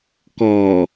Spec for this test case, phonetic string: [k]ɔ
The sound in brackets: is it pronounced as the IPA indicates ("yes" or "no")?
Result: yes